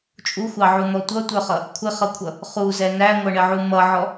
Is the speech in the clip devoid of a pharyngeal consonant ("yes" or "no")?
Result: no